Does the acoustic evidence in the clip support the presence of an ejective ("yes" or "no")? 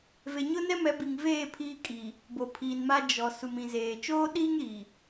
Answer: yes